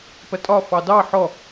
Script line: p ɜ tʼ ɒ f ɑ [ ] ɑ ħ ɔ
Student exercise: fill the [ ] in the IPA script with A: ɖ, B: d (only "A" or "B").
B